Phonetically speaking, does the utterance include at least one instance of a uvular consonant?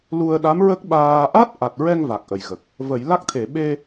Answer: no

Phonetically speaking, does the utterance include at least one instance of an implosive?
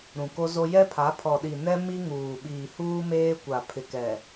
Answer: yes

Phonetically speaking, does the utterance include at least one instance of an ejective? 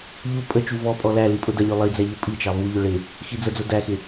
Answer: yes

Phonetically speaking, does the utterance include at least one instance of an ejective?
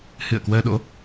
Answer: no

